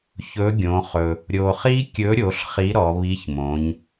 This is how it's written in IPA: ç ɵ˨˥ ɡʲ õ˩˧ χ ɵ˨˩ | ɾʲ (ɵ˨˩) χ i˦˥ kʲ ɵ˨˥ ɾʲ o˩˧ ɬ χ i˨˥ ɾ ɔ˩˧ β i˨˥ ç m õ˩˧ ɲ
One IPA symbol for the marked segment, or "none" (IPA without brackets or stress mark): o˨˩